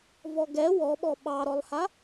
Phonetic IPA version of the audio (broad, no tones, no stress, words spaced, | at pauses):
vɔɡɛ wɔɓɔ ɓɑɾɔlˠha